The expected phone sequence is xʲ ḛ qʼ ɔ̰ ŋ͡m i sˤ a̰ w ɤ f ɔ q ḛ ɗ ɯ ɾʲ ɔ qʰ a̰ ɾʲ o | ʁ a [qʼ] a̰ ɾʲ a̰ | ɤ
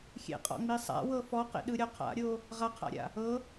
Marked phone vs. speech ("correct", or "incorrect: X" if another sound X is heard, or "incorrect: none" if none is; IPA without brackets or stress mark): incorrect: qʰ